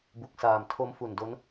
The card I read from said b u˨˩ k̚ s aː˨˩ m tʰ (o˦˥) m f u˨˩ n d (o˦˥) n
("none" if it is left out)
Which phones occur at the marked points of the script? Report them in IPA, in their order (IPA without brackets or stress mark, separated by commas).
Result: o˦˥, o˦˥